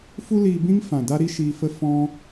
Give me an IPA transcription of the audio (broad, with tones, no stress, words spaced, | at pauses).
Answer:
fu˦liː˧bĩ˦ŋ fã˨da˦ɾi˦ʃiː˧ fə˦fɔ̃˦